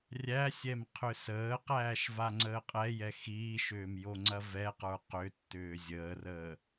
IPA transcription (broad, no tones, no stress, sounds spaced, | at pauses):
rʲ æ sʲ ɛ m qʰ ʏ s əː q æː ʃ v a ŋ͡ǀ əː qʼ ɛ j ɛ x iː ʃ ʏː m j o ŋ͡ǀ ɐ v ɛ q ə˞ q ʏ tː ʏː zʲ əː r əː